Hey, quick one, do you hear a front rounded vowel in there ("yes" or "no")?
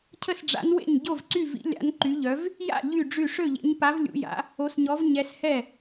yes